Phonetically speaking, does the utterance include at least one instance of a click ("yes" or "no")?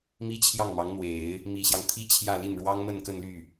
no